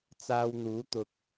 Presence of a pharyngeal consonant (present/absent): absent